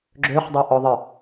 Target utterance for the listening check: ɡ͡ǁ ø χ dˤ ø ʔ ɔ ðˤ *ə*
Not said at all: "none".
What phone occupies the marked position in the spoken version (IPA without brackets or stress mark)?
ə